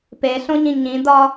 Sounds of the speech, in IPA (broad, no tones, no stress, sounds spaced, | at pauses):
p e ɬ õ ɲ ĩ ɲ ĩ d ɒ